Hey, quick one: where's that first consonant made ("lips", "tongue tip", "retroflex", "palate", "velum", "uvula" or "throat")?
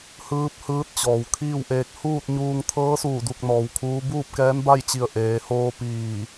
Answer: throat